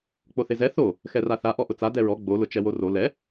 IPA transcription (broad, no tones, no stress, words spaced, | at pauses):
k͡poθezɛ θo | xɛraθa ʔɔʔʊt͡sa dɛɹɔ ɡ͡bo lʊt͡ʃɛworo lɛ